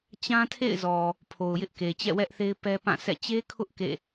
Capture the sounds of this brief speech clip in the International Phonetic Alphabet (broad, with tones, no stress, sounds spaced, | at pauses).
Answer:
t͡ɕ ã˦ tʰ ḛ˦˨ ɪ̯ z ɔ˨ | pʰ o˨ ʊ̯ j ɪ˦ ʔ k e˨ t͡ɕ ɛ̰˦˨ w ɛ˦ ʔ θ e˦ ɪ̯ p ɛ˦ p ã˦˨ sʰ ɛ̰˦˨ t͡ɕ e˦ kʰ ʊ˦ ʔ k ḛ˦˨